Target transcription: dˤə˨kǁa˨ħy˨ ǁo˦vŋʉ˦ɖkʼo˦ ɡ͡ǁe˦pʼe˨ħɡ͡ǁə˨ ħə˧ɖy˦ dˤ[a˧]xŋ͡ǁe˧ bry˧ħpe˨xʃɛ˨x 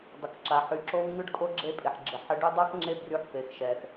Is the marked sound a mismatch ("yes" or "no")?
yes